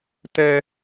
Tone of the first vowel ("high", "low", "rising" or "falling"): high